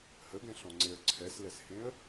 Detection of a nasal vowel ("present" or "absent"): present